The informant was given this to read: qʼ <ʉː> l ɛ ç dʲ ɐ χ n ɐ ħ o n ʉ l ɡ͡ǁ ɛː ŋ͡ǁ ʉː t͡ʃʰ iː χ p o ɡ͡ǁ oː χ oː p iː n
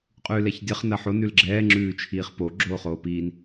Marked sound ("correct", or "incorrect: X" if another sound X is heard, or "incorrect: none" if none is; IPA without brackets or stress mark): correct